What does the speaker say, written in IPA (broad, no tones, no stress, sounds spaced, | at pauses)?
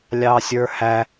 lʲ ɑ sʲ ə˞ h æ